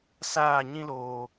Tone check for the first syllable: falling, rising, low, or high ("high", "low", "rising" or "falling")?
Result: falling